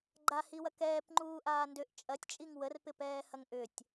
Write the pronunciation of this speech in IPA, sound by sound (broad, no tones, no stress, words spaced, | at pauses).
ɡ͡ǃahiwɐ kɛːpŋ͡ǃuːʔaː ndʏʔ t͡ʃʼɐtʲt͡ʃʼiŋ wərpɪpɛːhɐŋ ʔʏtʲ